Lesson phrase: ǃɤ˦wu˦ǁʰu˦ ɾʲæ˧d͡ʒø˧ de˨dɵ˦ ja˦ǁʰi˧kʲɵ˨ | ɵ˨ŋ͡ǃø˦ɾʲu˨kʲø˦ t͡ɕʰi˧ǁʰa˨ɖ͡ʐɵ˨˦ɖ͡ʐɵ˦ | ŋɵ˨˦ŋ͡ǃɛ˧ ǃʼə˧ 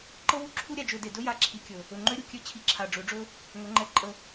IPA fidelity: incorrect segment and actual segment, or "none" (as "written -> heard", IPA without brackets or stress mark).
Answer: none